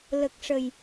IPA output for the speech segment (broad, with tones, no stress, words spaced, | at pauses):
lə˨˩k̚ʂə˨˩j